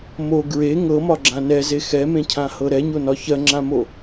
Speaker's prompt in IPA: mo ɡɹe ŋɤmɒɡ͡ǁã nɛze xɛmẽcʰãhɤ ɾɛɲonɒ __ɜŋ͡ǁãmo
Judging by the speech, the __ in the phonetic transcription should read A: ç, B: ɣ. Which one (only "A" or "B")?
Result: A